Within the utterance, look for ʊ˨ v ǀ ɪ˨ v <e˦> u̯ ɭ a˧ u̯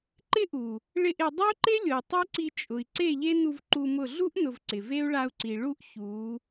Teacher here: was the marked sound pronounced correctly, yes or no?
yes